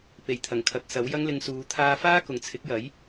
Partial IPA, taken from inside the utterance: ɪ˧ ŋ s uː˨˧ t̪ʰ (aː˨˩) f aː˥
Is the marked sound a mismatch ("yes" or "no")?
yes